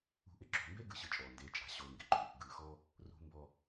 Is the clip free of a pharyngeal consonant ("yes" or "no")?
yes